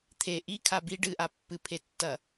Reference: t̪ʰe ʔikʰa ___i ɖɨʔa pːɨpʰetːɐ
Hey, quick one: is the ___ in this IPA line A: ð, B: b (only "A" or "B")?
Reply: B